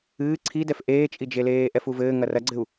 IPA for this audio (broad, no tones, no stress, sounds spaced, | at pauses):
ɨː ǀʰ i d ɛ f ʔ eː t͡ʃʼ i d͡ʒ e l eː ʔ ɛ f u v ɘː ŋ ɐ r ɐ ɡ͡ǀ ɘ u̯